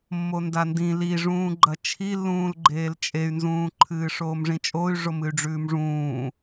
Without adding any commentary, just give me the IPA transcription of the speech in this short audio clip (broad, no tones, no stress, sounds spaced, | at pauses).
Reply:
mː o n d a n d ĩ l i ʐ ũː ɡ͡ǃ ɐ t͡ʃʰ i lː ũː l ɡ͡ǃ eː l t͡ʃʼ e y̯ n z ũː ǃʰ ɨː ʂ oː m ʐ ĩ t͡ʃʼ o y̯ ʐ o m ɨ y̯ ɖ͡ʐ ʉː m ʐ ũː